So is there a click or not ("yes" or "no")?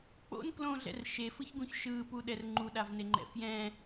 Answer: yes